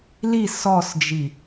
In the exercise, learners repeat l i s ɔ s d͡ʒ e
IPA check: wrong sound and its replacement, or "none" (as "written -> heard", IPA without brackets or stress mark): e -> i